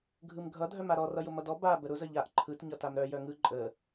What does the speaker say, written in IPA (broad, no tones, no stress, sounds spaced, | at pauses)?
ɡʱ ɯ m ɡʱ ʌ dʱ œ m a ɾ ɔ r ʌ j ʊ m ʌ d ɔ b a b ə ɾ ʊ z ə ʎ a ʔ ǃʰ ɯ t ɲ ʌ t a m ɾ œ j œ ŋ ɯ ǃʼ ə